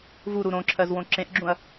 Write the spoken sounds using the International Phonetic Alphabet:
vuɾu ɾõǁʰɜzwõ ǁẽʔɡ͡ǁũɐ̯

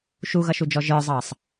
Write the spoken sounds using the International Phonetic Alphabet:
ʃuɣʌʃud͡ʒɔ ʒə˞zˤɑsˤ

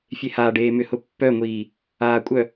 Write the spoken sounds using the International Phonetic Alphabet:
fʲehaːɖeːmʏ hʊpːœŋʷiː | aːkʷʼœ

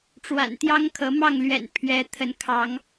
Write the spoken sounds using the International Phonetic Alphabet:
ʈ͡ʂwa̰˨˩nt̪jɑ˦ŋkʰɤ˨˦ mɑ˥˨ŋlɥɛ̰˨˩n pʰɥɛ˨˦ t̪ʰə˨˦nkʰɑ˨˦ŋ

